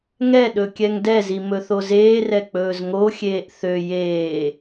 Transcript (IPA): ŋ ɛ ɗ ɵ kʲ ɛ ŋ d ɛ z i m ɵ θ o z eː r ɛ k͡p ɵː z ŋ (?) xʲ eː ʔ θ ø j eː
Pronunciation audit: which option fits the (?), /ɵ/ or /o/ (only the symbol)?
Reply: o